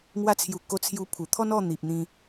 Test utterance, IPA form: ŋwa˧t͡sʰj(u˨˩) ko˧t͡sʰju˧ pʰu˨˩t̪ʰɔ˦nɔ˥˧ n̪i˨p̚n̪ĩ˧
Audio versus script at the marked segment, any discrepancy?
no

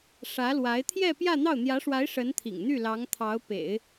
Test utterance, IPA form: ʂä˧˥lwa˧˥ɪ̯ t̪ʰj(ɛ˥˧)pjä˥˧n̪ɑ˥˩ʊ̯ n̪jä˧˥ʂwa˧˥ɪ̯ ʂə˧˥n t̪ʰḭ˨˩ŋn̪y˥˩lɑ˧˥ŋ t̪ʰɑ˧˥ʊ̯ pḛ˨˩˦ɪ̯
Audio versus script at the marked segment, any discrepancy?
no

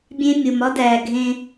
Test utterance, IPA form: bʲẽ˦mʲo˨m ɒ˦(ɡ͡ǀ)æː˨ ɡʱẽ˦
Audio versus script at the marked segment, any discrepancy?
yes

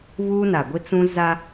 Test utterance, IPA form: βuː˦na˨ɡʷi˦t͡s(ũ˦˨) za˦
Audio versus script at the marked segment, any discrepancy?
yes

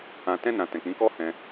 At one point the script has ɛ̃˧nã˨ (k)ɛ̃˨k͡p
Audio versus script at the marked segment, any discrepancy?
yes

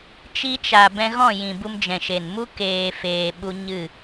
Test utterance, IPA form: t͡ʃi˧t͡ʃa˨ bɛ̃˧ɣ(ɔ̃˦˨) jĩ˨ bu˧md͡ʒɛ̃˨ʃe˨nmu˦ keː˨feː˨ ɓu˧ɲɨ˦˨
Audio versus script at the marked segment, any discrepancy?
no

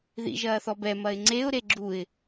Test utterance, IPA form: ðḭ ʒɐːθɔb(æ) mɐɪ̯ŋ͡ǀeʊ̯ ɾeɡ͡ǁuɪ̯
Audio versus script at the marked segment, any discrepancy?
yes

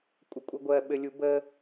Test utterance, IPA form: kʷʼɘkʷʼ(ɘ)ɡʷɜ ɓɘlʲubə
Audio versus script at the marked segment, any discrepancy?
no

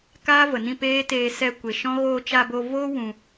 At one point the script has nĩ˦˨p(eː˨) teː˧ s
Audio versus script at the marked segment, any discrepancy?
yes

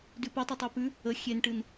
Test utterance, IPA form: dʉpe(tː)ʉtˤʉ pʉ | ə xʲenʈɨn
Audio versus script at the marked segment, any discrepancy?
yes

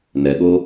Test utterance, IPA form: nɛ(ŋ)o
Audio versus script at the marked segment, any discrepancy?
yes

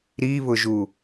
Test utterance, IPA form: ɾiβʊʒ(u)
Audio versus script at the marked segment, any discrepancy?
no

